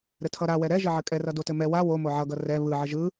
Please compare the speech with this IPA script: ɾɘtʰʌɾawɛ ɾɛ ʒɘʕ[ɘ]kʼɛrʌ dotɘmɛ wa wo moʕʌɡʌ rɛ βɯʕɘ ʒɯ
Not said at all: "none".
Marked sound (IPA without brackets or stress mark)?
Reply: ɘ